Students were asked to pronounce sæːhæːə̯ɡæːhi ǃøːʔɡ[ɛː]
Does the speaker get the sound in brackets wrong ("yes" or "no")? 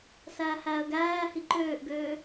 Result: yes